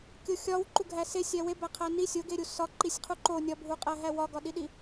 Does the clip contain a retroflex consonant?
no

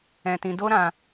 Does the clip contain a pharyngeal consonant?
no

